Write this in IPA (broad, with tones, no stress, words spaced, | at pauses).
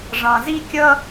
ʐɑ̃˩zi˥kʲʌ˥